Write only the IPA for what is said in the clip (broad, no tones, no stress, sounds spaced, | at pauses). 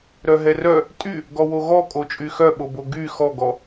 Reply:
ɾ œ ɦ ɛ r œ | tʼ y | ɡ ɔ w o ɣ ɔ kʼ o t͡ʃʼ y x œ ɓ o b o ɡ y x ɔ ɡ ɔ